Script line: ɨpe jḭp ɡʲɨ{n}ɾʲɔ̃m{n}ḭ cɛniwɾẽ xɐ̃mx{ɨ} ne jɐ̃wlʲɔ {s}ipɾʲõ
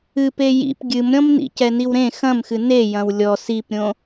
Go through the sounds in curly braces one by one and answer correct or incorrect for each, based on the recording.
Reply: incorrect: m, correct, correct, correct

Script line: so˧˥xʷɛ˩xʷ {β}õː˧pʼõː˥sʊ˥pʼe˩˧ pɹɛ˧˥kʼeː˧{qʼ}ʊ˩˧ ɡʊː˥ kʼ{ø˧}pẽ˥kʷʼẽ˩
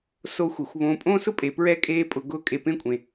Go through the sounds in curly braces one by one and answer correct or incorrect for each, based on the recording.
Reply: correct, incorrect: pʼ, incorrect: e˧

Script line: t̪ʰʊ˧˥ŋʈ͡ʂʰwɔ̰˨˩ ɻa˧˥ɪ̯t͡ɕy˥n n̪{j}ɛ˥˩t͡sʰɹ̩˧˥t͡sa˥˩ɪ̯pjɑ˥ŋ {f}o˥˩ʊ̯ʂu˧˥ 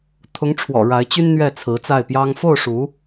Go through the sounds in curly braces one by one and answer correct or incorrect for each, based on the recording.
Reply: incorrect: ɥ, correct

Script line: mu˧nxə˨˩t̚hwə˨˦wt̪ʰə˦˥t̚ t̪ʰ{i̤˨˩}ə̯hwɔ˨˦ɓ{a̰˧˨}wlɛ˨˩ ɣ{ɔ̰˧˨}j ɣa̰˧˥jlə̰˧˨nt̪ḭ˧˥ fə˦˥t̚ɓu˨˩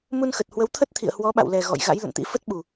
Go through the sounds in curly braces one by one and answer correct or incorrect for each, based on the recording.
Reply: incorrect: ḭ˧˨, correct, correct

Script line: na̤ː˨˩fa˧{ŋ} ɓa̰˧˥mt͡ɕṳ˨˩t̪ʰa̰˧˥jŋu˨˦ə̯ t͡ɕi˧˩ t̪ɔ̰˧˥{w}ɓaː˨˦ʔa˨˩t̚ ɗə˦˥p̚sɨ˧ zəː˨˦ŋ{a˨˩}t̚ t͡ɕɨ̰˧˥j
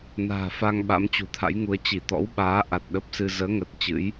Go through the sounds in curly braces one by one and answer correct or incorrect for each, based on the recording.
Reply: correct, correct, incorrect: ə˨˩

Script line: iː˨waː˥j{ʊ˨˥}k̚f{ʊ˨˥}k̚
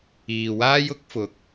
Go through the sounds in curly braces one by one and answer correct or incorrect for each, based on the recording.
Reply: correct, correct

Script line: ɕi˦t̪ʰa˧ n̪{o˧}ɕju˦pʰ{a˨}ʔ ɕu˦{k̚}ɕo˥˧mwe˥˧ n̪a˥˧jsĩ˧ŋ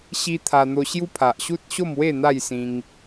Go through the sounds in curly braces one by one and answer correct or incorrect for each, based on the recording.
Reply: correct, correct, incorrect: t̚

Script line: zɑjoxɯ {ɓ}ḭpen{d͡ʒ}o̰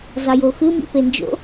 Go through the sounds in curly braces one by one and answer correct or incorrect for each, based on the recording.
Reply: incorrect: m, correct

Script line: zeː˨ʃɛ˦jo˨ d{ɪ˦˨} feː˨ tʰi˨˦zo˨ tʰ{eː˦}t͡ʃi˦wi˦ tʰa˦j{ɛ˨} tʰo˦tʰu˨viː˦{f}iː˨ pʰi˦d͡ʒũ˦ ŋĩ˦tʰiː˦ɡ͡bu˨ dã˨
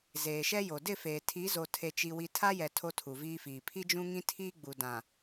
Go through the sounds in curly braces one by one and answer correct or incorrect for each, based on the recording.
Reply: correct, incorrect: e˦, correct, correct

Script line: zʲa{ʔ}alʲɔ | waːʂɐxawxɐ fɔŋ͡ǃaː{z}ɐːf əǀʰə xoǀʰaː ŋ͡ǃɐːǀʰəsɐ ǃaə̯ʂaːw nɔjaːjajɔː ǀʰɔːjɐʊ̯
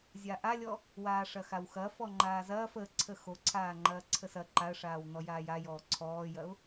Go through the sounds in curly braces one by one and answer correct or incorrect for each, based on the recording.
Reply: correct, correct

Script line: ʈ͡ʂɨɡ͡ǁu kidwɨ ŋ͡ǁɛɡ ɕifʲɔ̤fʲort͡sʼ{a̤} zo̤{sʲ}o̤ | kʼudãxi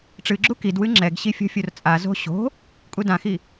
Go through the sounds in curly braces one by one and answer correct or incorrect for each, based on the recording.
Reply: incorrect: a, incorrect: ɕ

